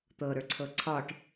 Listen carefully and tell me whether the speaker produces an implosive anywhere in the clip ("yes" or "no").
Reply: no